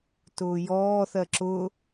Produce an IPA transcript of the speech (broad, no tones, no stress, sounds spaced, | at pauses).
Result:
t ʊː j ɔː θ ɜ ǁ ʊ